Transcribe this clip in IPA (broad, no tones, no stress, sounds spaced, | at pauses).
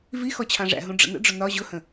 v i x ɔ t͡ɕʰ ɑ̃ ʐ æ̰ ɦ ũ ɖ͡ʐ ə̰ n ə̰ ɖ͡ʐ ʊ n ɒ ʑ ʊ h ə̃